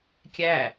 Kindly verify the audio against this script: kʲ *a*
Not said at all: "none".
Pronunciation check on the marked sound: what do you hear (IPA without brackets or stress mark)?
æ